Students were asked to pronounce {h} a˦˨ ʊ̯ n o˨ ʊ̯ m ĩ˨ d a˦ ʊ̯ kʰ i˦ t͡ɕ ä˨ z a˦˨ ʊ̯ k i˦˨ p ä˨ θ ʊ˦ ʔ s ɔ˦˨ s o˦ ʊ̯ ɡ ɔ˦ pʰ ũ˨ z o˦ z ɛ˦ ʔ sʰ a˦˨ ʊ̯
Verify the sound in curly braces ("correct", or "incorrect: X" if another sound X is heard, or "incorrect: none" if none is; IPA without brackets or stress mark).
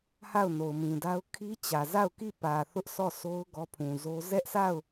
correct